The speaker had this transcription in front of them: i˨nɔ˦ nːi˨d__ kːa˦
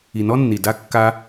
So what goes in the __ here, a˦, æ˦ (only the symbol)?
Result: a˦